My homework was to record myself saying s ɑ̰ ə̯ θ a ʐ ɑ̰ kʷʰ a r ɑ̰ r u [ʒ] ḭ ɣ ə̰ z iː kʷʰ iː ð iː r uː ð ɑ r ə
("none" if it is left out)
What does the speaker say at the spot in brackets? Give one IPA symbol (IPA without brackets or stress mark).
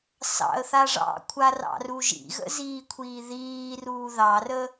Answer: ʒ